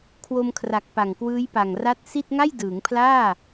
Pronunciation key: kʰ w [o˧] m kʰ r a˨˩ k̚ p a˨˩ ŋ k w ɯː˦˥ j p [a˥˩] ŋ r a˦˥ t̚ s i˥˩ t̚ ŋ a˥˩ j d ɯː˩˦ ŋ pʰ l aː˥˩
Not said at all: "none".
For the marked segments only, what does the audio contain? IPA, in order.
o˧, a˨˩

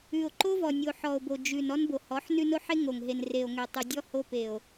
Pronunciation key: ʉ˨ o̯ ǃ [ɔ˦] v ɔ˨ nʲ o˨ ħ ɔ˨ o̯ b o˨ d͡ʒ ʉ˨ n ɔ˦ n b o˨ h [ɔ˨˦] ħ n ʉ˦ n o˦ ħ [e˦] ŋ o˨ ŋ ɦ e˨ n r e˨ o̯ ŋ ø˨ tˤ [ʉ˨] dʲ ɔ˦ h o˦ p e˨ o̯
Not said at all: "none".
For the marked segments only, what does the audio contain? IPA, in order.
o˦, ɔ˨˦, e˦, ʉ˨

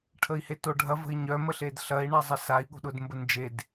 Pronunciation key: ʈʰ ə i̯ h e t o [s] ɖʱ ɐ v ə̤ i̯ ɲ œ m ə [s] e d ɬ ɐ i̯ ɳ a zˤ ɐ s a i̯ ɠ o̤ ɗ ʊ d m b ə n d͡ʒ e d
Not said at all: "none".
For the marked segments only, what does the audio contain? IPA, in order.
none, ɬ

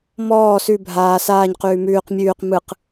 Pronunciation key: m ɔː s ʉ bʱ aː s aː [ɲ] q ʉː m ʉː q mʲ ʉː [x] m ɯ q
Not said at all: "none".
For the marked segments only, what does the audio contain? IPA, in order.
ɲ, q

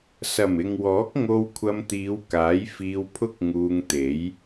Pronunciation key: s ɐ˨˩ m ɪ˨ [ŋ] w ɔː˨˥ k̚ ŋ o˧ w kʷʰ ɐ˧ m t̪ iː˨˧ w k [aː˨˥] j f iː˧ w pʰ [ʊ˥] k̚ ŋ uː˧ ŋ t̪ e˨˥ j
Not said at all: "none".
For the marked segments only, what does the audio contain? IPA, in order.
ŋ, aː˨˥, ʊ˥

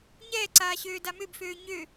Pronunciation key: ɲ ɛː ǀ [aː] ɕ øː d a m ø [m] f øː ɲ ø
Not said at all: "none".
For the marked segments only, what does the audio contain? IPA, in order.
aː, b

